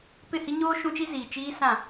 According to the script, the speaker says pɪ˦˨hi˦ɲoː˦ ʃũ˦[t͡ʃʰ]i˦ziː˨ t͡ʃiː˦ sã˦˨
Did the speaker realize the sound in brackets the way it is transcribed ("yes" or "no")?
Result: no